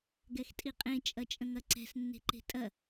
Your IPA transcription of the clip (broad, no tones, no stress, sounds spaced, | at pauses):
ɡ ɛ x tʼ i qʼ ẽ t͡ʃʼ ɐ t͡ʃʼ ə̃ ŋ ɐ ǀ ɛ̤ s nː e̤ ǃ e̤ tʼ ɐ